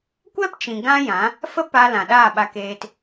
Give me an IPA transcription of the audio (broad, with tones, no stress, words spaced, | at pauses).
kʷɛ˦pt͡ʃĩ˨ ɡã˦jã˨˦ | fə˦pa˧lã˨ ɗaː˦˨ɓa˧keː˧t